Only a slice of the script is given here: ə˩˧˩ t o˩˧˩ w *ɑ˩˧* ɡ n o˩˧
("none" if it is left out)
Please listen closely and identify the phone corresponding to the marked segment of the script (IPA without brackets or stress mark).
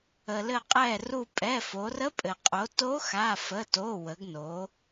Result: ə˩˧